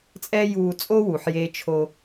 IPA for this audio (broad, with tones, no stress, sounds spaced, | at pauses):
t͡sʼ ɛ˥ j uː˧ t͡sʼ o˥ w u˩ ħ j eː˧ t͡ʃʰ o˧